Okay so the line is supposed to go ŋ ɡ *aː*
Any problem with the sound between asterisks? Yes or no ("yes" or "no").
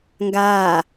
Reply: no